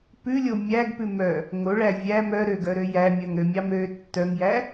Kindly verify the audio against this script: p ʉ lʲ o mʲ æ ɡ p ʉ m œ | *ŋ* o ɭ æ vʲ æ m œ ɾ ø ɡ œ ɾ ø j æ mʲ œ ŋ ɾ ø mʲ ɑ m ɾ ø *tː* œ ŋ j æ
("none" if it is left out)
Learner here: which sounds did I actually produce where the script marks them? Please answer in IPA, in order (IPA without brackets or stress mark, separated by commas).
ŋ, tː